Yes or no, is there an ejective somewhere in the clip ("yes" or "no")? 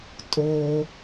yes